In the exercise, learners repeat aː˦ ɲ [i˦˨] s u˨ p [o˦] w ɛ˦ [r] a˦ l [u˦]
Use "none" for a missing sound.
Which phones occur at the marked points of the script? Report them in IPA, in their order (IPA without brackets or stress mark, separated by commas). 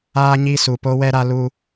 i˦˨, o˦, ɾ, u˦